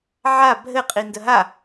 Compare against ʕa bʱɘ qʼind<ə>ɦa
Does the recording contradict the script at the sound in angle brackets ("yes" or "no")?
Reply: no